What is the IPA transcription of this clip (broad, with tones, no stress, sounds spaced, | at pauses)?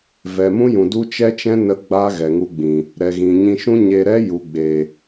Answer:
v ɛ˨ m ũ˦ j ũ˨ d u˦ t͡ʃ ɛ˦ t͡ʃ ɛ̃˦ n ə˦ ɡ͡b a˦ ɣ ɛ˨ ŋ u˧ ɡ͡b ĩ˨ | ɾ ɛ˨ ɣ ĩ˨ ɲ ĩ˧ ʃ ũ˦ ɲ e˧ ɾ ɛ˦ j u˨ ɡ͡b e˨